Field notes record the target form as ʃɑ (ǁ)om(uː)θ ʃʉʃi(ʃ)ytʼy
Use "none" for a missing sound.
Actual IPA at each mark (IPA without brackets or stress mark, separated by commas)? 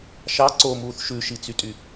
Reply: ǀ, uː, t͡s